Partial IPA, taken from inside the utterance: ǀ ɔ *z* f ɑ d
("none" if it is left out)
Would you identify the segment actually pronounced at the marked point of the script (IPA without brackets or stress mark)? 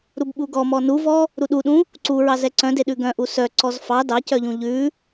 z